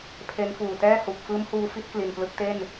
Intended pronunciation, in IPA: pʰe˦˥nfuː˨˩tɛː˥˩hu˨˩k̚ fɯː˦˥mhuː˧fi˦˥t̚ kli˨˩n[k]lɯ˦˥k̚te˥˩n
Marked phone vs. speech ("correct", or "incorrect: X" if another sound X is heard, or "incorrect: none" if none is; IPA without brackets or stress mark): incorrect: p